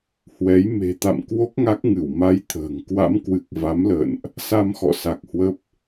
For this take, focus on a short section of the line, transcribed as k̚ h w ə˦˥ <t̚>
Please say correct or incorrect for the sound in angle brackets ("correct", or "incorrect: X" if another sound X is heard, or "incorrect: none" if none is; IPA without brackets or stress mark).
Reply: incorrect: p̚